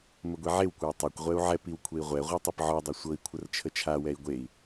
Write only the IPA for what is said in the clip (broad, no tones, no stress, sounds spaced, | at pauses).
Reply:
m ə ɡʷ i ʕ e w kʷ ɤ i̯ tˤ ɛ kʷ ʁʷ ɛ u̯ ʕ ɛ p i w kʷʰ e i̯ ʁʷ ɛ ʁʷ ɛ tˤ i p ʕ ɔ dˤ i sʷ ɤ i̯ kʷʰ ə r t͡ʃʰ ə t͡ʃʰ a w ɛ i̯ ɡʷ e i̯